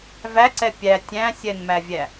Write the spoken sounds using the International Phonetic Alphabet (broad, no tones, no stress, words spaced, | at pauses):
væǀɛ pʲæ tʲæ̃ sʲɛnmævʲæ